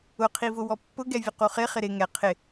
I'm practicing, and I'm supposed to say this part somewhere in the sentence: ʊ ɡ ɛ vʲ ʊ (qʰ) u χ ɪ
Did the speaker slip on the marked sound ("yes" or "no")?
yes